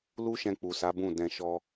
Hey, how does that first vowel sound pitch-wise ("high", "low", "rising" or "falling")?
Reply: high